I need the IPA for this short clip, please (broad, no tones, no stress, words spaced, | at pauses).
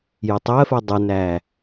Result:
jʊtˤɜfɜ dˤənæ